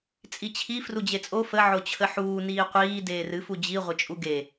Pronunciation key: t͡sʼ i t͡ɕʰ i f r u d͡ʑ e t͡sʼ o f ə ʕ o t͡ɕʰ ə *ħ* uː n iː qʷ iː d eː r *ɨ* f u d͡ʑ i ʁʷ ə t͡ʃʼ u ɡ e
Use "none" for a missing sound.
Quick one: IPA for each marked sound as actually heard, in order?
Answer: ħ, ɨ

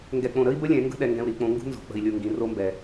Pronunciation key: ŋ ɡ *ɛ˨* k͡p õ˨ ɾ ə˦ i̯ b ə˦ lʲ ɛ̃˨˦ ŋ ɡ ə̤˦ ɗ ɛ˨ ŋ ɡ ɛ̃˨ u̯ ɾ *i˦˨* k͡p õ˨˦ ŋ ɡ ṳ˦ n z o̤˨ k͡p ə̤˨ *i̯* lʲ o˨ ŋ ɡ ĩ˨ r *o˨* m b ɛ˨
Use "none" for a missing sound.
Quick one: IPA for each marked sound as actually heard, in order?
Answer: ɛ˨, i˦˨, i̯, o˦

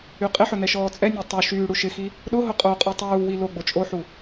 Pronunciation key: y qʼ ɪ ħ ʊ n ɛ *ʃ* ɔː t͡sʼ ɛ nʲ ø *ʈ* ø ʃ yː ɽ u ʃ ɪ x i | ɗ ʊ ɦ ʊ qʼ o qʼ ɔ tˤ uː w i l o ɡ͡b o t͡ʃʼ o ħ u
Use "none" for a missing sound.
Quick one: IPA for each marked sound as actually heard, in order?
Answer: ʃ, tˤ

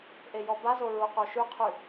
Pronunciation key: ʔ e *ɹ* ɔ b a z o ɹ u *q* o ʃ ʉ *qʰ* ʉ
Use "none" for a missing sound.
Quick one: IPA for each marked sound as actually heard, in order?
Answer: j, q, qʰ

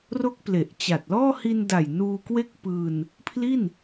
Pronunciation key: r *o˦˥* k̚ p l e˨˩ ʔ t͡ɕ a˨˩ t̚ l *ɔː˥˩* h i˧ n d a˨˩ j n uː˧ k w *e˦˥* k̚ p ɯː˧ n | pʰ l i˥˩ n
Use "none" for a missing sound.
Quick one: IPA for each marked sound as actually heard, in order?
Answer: o˦˥, ɔː˥˩, e˦˥

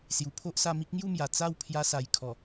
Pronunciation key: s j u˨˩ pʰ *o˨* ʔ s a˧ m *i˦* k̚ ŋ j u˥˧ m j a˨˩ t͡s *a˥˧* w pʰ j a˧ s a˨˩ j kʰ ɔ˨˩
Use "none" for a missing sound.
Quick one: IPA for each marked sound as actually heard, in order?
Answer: o˦, i˦, a˥˧

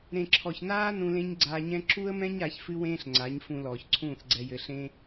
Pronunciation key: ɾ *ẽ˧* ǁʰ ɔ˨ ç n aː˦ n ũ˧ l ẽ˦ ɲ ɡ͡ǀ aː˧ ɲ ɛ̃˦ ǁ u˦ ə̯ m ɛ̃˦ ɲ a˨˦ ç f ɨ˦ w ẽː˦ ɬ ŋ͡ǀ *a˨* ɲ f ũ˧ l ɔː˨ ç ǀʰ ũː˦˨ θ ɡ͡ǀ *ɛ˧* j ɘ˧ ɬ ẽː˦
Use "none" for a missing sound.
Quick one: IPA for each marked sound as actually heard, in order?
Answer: ẽ˨, a˨˦, ɛ˧

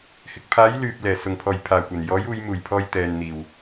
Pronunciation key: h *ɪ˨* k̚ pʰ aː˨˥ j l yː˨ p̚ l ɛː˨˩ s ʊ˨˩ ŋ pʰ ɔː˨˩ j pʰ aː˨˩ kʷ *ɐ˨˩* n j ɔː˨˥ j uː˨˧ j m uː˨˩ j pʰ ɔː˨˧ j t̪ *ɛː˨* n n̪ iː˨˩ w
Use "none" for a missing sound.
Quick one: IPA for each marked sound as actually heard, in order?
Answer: ɪ˨, ɐ˨˩, ɛː˨

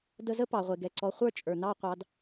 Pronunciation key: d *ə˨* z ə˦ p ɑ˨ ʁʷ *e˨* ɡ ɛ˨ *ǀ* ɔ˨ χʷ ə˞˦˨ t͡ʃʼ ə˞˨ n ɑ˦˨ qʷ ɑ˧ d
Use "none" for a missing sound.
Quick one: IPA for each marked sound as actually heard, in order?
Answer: ə˧, e˨, ǀ

